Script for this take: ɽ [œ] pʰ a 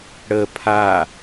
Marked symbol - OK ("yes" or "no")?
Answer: no